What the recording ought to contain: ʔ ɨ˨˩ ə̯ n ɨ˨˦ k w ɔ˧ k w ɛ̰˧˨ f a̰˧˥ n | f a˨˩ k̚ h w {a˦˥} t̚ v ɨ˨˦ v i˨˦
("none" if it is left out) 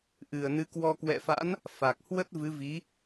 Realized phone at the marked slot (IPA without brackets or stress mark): ə˦˥